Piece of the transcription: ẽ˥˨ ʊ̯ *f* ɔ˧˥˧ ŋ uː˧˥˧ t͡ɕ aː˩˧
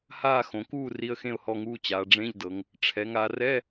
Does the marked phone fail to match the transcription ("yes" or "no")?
yes